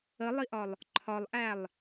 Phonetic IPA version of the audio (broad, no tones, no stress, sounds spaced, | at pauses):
ə lˠ i ʔ ɒ lˠ | ǃʰ ɒ lˠ ʔ æ lˠ